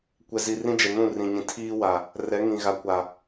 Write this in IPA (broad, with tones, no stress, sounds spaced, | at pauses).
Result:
kʷ ɛ˨ z i˨ r ĩ˦ d͡ʒ ɛ˨ n ũ˦˨ r ĩ˨ ɲ ĩ˨ tʰ iː˦ w a˨ | r ɛ˨˦ ŋ ĩ˨ ɣ a˨ kʷ a˨